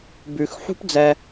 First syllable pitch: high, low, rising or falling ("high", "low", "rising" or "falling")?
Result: low